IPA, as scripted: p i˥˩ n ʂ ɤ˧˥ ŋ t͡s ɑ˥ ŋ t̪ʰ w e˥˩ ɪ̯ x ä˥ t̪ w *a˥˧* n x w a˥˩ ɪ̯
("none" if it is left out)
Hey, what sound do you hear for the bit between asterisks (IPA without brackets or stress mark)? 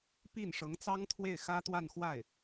a˥˧